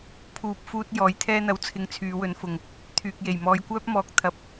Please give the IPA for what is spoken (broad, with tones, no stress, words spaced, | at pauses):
pʰuː˨p̚fuː˧t̚ jɔː˨˥jt̪ʰɛː˥n̪ɐ˧w t͡sʰɪ˧ŋt͡sʰyː˨˧wɵ˨˥nfʊ˨ŋ | t̪ʰyː˨k̚je˨˩j mɔː˧jkʷœː˥p̚mɔː˧k̚ t̪ʰɐ˧p̚